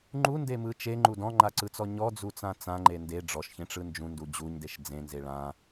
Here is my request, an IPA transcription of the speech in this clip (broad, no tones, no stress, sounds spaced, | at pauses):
ŋ͡ǃ u n d e m ɯ t͡ʃ e ŋ͡ǃ u d ɔ̃ ŋ͡ǃ a ǀ ɯ t͡s ɔ ɲ ɔ d͡z u t͡s ã t͡s ã ŋ͡ǃ e n d e ɖ͡ʐ ɔ ʃ ç ẽ ʈ͡ʂ ɯ n d͡ʒ ũ n d u d͡ʑ u ɲ d e ʃ d͡z ẽ n z e ɭ ã